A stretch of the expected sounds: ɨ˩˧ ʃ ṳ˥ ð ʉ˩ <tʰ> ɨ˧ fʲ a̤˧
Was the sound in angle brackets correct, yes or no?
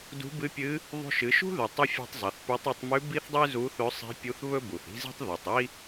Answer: no